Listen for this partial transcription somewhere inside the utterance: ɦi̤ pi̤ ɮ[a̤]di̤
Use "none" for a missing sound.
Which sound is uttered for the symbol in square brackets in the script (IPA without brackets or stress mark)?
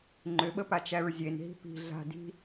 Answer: a̤